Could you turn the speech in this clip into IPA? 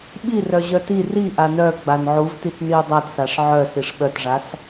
ɓ i r œ ʑ œ t i r i ʔ a n œ ɡ͡b a n ʕ u v t i t n i ʊ̯ dˤ a t s a ʂ ʕ œ s i ʂ ɓ œ t ʐ a s

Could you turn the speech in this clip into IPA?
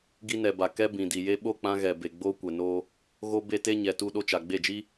ɡ i˧ n ɛ˨ b a˨ k ɛ˦ b ĩ˨ d i˨ j e˧ ɓ o˦˨ k͡p ã˧ ɣ ɛ˨ b e˨ ɡ͡b oː˧ kʷ ɛ˨ n oː˧ | ɣ o˦ b e˦ t e˦ ɲ ɛ˨ t u˧ ɗ o˧ t͡ʃ a˨ ɡ͡b e˦˨ d͡ʒ i˦

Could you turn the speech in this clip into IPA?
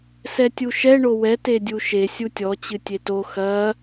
s ɛ tʲ u ʃ ɛ ɳ o w ɛ t e dʲ u ʃ e sʲ u tʲ ɔ t͡ɕ ɨ tʲ e t o x ɐ

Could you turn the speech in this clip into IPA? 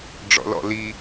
ɖ͡ʐ ɔ̰ l ɔ̰ l i

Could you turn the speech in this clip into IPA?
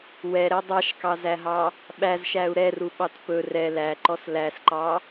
w ɛ ɾ ɛ dˤ ɑ ʃ k ɑ z æ ɦ ɑ | ɓ æ z ʃ æ u̯ ɾ ɛ r u ɓ ɑ t p ɵ r ɛ l æ ǃ ɔ s l æ s ǃ ɑ

